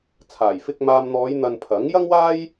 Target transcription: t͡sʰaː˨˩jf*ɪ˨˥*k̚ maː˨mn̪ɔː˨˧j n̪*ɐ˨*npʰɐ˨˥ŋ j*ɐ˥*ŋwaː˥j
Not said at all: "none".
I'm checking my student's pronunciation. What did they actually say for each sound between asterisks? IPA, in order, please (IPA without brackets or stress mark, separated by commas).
ɪ˧, ɐ˧, ɐ˥